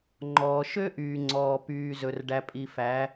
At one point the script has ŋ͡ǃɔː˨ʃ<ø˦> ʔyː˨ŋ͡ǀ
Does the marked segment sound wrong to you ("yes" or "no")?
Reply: no